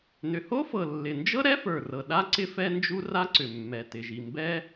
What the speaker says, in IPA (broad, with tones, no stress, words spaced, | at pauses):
nʏ˩ho˥fɤ˩lːɪ˩ nd͡ʒɤ˥ ɾɛ˥fə˞˩rɤ˩ ɗa˥ ǀɪ˥ fɛ˥ nd͡ʒu˥ra˥ǀʏ˩mːɛ˩ tɪ˩ʒi˩ mbɛ˥